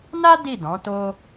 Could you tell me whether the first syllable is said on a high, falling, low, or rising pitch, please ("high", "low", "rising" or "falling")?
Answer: high